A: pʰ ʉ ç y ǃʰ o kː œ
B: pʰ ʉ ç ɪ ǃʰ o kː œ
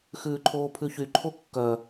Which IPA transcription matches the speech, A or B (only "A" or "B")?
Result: A